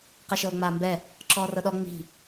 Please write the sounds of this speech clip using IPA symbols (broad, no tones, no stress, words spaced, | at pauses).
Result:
qɛʃɤːŋ͡maːmbɛ | ǁɔːrɤɗɔ ŋ͡mi̤